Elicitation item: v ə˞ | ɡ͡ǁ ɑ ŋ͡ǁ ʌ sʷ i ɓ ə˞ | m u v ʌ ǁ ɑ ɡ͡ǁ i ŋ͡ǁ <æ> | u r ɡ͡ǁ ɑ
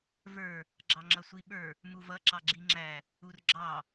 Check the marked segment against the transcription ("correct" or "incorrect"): correct